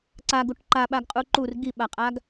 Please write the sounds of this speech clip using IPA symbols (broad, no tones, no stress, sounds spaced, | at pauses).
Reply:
ǀ a ɡ u ʈ ǃ a ɓ a ɡ qʼ u ǃ u r ɡ i ɓ a qʼ a ɡ